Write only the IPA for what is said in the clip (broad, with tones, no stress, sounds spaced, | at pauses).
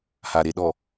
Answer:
h a˨ ɾ e˨ ɗ ɔ˨